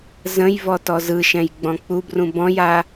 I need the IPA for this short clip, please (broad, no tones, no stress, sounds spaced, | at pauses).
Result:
z ə̃ j v ɔ t ɔ z ɯ ʃ ɛ̃ j ɡ͡b ɔ̃ k͡p u b r ũ b ɔ̃ j a